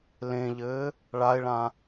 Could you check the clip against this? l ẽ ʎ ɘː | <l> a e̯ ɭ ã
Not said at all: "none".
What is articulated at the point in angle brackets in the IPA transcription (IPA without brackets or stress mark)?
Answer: ɭ